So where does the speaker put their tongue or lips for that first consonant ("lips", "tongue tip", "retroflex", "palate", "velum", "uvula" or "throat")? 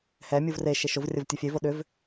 throat